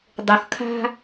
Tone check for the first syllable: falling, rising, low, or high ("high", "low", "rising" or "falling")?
low